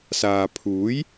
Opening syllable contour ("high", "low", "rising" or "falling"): low